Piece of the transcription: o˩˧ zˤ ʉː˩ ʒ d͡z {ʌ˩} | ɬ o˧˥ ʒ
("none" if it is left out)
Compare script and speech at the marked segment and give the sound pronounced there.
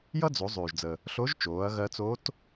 ə˩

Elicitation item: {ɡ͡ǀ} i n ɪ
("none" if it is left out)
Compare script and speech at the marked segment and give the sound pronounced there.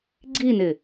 ɡ͡ǀ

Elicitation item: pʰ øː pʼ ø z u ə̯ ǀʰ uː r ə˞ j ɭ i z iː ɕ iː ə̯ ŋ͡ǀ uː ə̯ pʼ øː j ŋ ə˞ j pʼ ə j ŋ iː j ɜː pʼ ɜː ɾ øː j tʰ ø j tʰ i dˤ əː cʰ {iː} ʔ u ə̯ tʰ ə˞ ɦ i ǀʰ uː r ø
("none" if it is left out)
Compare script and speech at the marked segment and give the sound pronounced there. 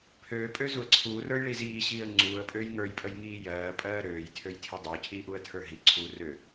iː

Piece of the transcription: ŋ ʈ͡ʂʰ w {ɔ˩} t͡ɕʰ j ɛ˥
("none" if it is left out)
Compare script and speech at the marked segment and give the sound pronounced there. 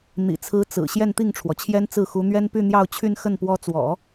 ɔ˩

